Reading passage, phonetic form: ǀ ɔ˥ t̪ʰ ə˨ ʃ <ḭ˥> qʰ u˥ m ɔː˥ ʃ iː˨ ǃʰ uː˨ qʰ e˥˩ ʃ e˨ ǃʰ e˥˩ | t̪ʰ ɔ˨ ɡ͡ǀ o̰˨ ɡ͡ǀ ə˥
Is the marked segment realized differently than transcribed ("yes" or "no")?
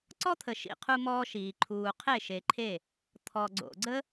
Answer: yes